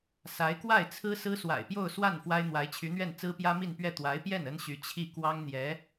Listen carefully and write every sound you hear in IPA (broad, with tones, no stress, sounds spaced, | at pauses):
s a˧˥ ɪ̯ k w a˥˩ ɪ̯ t͡sʰ ɹ̩˥ s ɹ̩˥ s w a̰˨˩ ɪ̯ p j o˥˧ ʊ̯ s w a˥˩ n f w a˥ ɪ̯ n̪ w a˧˥ ɪ̯ t͡ɕʰ y˧˥ n̪ ɥ ɛ˥˩ n t͡s ɹ̩˥ p j ä˥ m i˥˧ n p ɥ ɛ˥˩ t̪ w a˧˥ ɪ̯ p j ɛ˥˩ n ə˥ n ɕ y˧˥ t͡ɕʰ i˥˩ k w ɑ˥ ŋ n̪ j ɛ˧˥